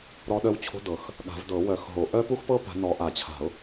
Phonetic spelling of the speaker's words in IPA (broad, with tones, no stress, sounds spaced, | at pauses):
ɾ ɔ˥ ɗ œ˥ w t͡ɕʰ o̤˥ d ɤ˨˩˦ x | ɠ a̤˨˩˦ v d ɤ˨˩˦ w œ˨˩˦ x ɦ o˨˩˦ ʔ œ˥ p u˥ x p ɤ˥ p a̤˨˦ n ɔ˨˦ ʔ a˨˩˦ t͡ɕʰ a̤˨˩˦ ʊ̯